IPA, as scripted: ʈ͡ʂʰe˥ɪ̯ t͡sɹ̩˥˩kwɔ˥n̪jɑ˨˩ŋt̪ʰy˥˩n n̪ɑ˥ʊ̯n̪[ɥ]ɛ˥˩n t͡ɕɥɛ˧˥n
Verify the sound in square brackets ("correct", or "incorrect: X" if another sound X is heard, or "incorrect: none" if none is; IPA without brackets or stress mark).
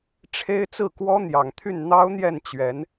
incorrect: j